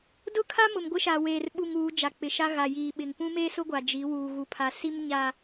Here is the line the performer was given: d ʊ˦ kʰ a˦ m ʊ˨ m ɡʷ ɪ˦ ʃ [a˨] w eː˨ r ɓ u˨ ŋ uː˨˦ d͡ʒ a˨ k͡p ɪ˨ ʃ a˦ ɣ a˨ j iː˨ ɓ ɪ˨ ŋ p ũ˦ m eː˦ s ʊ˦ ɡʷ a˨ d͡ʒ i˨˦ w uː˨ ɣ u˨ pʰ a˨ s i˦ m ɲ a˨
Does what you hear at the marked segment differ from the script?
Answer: no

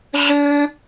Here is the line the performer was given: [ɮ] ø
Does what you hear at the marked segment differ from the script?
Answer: no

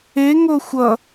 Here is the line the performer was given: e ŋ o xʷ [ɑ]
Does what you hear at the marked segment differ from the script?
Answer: yes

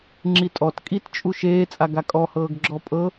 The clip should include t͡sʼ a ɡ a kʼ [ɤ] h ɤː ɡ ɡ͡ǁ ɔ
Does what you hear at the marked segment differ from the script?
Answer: yes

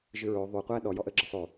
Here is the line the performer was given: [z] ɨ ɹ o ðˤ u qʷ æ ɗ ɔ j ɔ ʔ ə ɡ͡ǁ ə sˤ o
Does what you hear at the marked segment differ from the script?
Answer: yes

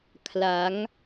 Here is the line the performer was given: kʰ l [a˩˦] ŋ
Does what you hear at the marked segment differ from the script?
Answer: no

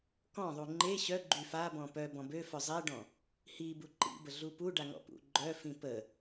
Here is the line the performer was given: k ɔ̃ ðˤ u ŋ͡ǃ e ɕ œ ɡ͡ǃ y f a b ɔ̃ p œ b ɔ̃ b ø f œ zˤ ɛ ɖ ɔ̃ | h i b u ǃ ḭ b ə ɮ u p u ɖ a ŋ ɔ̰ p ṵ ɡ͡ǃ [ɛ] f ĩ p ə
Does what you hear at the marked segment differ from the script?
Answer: yes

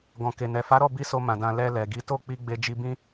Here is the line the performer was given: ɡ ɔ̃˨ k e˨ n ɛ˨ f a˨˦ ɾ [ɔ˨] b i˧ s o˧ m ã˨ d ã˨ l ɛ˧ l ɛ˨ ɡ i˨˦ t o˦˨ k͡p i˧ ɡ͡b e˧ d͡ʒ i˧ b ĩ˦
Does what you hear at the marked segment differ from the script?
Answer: yes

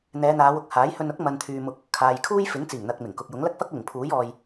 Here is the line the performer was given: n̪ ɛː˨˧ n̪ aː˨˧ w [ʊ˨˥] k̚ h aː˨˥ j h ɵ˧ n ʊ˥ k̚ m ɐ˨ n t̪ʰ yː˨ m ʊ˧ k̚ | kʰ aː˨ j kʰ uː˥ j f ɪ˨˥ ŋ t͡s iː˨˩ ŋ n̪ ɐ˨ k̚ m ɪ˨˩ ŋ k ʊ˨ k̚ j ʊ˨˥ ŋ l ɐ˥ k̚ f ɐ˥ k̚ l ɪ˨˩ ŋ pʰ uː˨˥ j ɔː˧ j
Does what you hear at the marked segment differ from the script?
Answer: yes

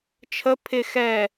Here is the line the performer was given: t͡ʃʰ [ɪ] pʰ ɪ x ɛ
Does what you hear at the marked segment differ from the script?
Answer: yes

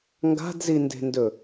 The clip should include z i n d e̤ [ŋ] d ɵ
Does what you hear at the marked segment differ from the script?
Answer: yes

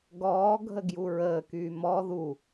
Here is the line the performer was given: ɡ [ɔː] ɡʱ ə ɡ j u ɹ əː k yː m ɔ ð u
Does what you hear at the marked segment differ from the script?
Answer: no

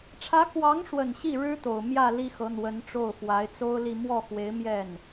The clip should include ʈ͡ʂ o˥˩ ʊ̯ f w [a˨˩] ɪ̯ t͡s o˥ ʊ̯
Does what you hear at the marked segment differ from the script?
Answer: yes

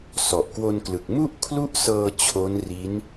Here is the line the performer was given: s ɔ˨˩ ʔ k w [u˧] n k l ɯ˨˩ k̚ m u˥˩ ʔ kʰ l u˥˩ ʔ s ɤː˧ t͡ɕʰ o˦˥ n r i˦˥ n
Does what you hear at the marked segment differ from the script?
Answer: yes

